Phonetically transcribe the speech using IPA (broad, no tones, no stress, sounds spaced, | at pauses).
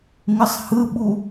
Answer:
ŋ ɯ sˤ h ɯ ɓ u